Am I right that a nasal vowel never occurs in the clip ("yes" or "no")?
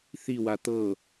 yes